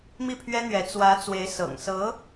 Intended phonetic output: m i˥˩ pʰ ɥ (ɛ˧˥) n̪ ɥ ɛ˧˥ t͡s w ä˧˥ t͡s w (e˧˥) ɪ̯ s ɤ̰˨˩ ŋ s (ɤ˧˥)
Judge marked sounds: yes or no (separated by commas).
no, yes, yes